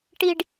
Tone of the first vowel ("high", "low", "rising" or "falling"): low